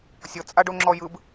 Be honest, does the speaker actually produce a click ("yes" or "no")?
yes